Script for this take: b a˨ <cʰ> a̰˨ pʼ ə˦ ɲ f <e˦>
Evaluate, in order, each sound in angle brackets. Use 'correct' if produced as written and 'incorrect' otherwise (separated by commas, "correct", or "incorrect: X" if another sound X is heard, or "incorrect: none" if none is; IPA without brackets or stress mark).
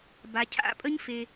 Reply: correct, correct